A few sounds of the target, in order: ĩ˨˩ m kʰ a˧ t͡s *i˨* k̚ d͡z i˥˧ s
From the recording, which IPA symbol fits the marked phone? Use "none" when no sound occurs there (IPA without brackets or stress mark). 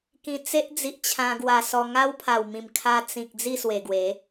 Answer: ĩ˨